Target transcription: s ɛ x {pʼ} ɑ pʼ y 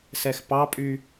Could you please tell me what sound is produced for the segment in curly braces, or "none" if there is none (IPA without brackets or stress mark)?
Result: p